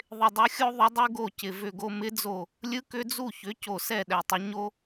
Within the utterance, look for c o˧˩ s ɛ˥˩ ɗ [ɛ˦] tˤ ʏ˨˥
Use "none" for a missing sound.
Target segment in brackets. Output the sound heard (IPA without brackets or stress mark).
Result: ɛ˧˩